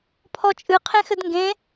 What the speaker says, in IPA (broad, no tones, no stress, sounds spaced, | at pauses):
pʰ ɔ t͡ʃʼ ɨ qʰ ẽ x ɘ d ŋ ɡ ẽ